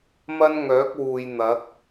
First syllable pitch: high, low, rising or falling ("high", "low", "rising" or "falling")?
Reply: high